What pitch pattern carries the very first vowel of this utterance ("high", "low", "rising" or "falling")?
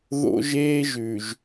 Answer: high